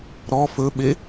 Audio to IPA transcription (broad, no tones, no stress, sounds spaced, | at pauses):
ɾ ɔ f ɵ ɓ e